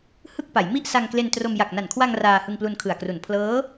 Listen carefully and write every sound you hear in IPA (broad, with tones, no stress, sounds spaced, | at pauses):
h ɯ˥˩ k̚ p a˩˦ j m i˥˩ ʔ s a˧ ŋ k l e˧ n t r o˧ m j a˨˩ k̚ n a˨˩ n kʰ w a˧ ŋ r aː˧ h ɯ˧ ŋ p l u˧ n kʰ ɯ˨˩ a̯ k r u˨˩ n pʰ l ɤː˦˥